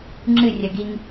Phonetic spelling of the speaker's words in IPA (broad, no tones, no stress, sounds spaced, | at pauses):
ŋ͡ǁ ɨ rʲ ɐ ɡ i ŋ